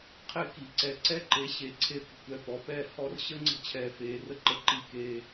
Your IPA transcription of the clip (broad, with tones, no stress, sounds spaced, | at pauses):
qʰ ɪ˥˨ k i˩˧ ǀ ɛ˧˩ ǀ ɛ˦ ǃ e˩˧ ɕ e˩˧ ǀʰ e˧˩ kʷ ə̤˧˩ kʷ ɛ˥˨ p ɔ˩˧ p ɛ˥˨ h ɔ˦ r ɕ ə˦ ŋ͡ǀ ə̤˦ t͡ɕʰ ɛː˧˩ f eː˩˧ r ə˥˨ ǃ ə˦ ǃ i˦ k eː˦